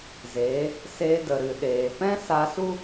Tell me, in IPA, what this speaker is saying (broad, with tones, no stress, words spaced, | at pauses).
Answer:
zeː˨˦ | seː˧də˨ ɾɨ˨ɗeː˨ pɛ̃˦sa˧su˦